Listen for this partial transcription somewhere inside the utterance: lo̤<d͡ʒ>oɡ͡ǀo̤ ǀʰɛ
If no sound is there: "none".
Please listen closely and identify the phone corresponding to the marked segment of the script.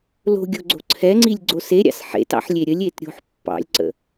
ɡʲ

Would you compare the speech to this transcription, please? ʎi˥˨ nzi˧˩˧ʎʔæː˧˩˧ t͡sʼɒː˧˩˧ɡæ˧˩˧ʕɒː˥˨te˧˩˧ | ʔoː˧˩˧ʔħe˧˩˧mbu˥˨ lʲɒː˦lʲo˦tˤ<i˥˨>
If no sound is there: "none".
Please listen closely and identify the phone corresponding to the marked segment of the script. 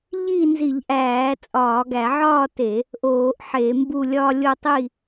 i˥˨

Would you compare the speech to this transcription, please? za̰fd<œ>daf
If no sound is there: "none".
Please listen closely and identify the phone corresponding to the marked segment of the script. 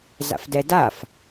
ɛ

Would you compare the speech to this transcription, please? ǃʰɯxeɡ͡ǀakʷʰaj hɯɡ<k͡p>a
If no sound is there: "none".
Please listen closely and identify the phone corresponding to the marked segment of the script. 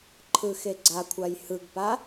p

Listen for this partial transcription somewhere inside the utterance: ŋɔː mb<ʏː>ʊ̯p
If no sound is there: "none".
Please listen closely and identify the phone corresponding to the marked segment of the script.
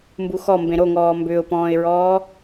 ʏː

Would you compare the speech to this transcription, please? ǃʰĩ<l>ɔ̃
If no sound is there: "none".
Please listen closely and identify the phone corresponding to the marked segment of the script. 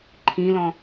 l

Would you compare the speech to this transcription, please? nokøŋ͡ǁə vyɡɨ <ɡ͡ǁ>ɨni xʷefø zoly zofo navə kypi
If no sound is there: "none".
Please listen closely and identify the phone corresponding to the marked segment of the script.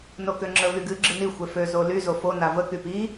ɡ͡ǁ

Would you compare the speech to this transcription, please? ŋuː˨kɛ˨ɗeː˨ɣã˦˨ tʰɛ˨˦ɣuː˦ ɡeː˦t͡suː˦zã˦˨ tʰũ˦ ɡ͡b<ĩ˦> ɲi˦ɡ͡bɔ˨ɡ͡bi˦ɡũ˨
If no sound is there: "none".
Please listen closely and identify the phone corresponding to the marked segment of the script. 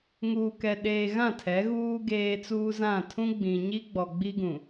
ĩ˨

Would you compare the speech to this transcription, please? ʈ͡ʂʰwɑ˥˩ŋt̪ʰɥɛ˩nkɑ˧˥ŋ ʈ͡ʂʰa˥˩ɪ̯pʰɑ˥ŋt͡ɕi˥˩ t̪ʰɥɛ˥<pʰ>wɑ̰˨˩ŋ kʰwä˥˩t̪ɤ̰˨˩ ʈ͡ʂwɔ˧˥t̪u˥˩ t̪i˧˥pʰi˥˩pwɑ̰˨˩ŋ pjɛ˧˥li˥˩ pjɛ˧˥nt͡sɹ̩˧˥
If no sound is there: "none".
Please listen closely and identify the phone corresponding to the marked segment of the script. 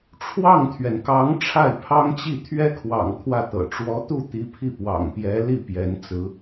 kʰ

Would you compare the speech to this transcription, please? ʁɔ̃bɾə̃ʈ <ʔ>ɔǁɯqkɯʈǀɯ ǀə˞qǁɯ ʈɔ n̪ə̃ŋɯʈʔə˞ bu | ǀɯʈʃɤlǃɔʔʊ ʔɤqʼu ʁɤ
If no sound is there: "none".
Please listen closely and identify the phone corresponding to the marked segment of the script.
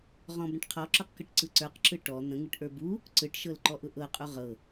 qʰ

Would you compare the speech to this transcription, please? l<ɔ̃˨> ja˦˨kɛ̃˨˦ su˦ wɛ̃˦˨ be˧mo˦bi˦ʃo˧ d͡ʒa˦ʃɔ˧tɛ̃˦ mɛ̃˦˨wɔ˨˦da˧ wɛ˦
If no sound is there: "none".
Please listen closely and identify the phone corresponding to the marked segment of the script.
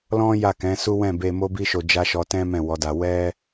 ɔ̃˦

